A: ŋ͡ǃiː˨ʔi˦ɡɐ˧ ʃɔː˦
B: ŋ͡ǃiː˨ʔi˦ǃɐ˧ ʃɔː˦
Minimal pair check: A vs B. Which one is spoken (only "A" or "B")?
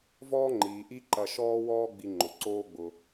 B